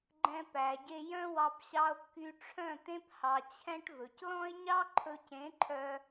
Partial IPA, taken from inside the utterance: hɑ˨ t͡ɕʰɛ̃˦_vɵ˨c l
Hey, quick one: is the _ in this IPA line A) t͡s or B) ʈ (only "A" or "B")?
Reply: B